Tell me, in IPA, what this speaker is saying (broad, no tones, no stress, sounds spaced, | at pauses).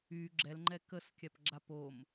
y ɡ͡ǁ ɛ l ŋ͡ǃ ɛ k ə s kʲ a p ɡ͡ǁ a p o m